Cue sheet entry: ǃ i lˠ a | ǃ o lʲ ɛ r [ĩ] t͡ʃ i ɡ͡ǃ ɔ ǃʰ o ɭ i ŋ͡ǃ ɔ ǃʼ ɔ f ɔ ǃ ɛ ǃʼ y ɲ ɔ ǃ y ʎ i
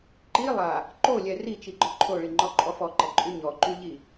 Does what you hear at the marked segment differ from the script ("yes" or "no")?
yes